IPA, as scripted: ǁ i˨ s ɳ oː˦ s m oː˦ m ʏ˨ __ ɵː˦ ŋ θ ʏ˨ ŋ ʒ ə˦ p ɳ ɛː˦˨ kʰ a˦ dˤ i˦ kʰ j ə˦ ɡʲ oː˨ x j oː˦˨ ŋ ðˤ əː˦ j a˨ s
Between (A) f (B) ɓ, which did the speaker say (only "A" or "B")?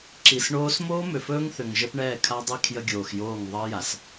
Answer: A